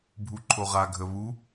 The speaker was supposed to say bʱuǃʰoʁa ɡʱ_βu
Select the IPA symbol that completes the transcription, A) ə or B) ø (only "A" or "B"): A